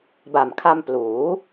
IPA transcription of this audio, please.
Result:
b a˨˩ m kʰ a˧ m p l uː˩˦

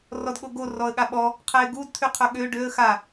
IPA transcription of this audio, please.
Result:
r ɔ d ɠ o ɡ o r ɔ ə̯ ɠ a ɓ ɔ | qʰ ɛ ɪ̯ ɡ u d t̪ʰ y qʰ œ ɠ ø ɖ ø ə̯ x a

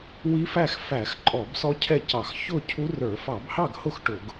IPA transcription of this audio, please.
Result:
w i˦˥ f æ˥˨ x f æ˧˩˧ x ǃʼ ɔ˧˩˧ b s ɔ˦˥ cʰ ɛ˥˨ c ɑ˧˩˧ x ç ʊ˥˨ cʰ u˦˥ r ə˞˧˩˧ f ɑ˧˩˧ b h ɑ˥˨ ɡ h ʊ˥˨ x ʈ ʊ˧˩˧ ɡ

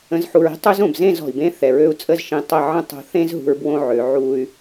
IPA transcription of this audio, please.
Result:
ə̃˨ z ħ u˨ ɹ i̤˦ tˤ ø˦ z õ˨ b z ẽ˦˨ z ɔ̤˨ i̯ b ẽ˦ θ ɛ˨ ɹ ø˦ u̯ t͡sʼ ə˦˨ z ʃ ĩ˨ tˤ ə˦˨ ʕ ə̃˦ tˤ o̤˨ θ ẽ˦ z ɦ ṳ˨ ɹ b w õ˦ ʕ ø˨˦ ʕ u˦ y̯

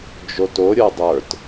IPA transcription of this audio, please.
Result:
d͡ʒ o t o ɾʲ ə˞ dˤ ə˞ t

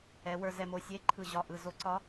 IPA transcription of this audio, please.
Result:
ɛ˩˧ w ə˞˧˩ z ɛ˧˩ m o˧˩ sʲ e˧˥ ǃʰ ɯ˧˩ ʑ ɒ˧˩ ʔ ɯ˧˩ z o˧˥ ǀ ɒ˧˥

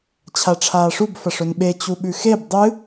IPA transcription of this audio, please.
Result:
t͡ɕʰ a ʈ͡ʂʰ aː ʂ u b f ɐ ʂ ɵ n ɓ e t͡ɕ u ɓ ʉ x e b dˤ ɨ

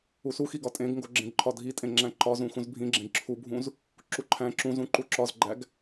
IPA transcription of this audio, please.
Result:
u s u x i ɡ ɒ tʼ ẽ ɡ ŋ ɡ o ɡ͡ǁ ẽ ɡ ǃʰ ɒ dʱ i tʼ ẽ ŋ͡ǁ æ̃ ǃ ɒ z ũ x ũ z bʱ ĩ ɡ͡ǁ ẽ ɡ ǁʰ u bʱ ũ z | ǁ u ǃʰ æ̃ ǁ ũ z ũ ǃ u ǁ ɒ z ɡ͡ǃ æ ɡ

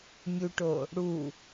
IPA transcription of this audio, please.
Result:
mʲ u ʈ o | ɽ u

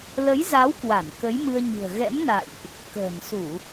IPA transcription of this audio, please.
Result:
l ə˨˦ j z a˨˦ w k w a˧˩ n k ə˨˦ j m ɨ˧ ə̯ ɲ ɨ̤˨˩ ə̯ ɣ ɛ̰˧˥ m n a̰˧˨ j ʔ | k ə̤ː˨˩ n s u˧˩˨

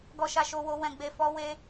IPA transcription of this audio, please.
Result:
ɡ ɔ˨ ʃ a˨ ʃ o˨ w o˨ w ɛ̃˨ ɡ͡b e˨ f ɔ˨˦ w e˧

